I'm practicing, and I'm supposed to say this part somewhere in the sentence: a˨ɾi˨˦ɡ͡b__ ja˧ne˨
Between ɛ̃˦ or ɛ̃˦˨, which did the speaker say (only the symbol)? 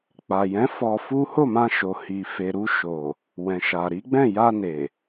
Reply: ɛ̃˦˨